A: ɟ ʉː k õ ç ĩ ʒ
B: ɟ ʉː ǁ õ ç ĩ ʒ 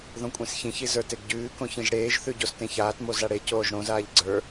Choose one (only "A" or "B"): A